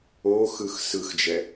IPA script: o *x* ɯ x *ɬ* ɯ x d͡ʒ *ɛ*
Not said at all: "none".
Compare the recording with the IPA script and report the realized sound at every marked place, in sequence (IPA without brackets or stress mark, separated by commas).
x, s, ɛ